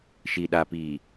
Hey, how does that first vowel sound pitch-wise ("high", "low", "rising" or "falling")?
low